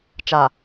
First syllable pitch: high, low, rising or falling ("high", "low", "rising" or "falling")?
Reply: low